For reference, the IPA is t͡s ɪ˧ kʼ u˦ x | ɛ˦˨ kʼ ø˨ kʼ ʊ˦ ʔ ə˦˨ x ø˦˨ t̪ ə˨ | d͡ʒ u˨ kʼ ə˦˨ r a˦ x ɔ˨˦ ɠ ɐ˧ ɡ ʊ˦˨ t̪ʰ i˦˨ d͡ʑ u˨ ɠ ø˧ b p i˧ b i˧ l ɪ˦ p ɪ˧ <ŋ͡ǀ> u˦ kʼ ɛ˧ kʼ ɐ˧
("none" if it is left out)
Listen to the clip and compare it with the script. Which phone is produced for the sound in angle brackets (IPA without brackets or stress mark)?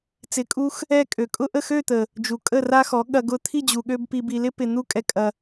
n̪